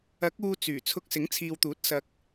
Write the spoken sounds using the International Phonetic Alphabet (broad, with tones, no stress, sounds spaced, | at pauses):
ɐ˨˥ k̚ uː˧ t͡s yː˨˩ t͡sʰ ʊ˧ k̚ s ɪ˨˥ ŋ t͡sʰ iː˨ w t̪ uː˨˥ t̚ s ɐ˨ k̚